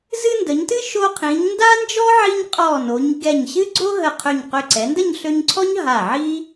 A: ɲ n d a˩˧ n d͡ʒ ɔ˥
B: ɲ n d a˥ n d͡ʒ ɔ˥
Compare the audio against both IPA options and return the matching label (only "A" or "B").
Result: B